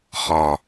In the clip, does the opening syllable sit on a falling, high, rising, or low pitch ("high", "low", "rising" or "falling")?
low